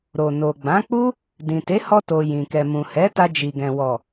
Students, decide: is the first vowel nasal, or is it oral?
oral